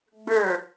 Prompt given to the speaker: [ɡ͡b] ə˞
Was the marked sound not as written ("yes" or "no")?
no